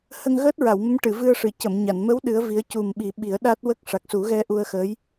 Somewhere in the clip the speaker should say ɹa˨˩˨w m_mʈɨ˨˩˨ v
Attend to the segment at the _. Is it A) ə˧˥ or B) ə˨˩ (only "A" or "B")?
A